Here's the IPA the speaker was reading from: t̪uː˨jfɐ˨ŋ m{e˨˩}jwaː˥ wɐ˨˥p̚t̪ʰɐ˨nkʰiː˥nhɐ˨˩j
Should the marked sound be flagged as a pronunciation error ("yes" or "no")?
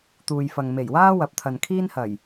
no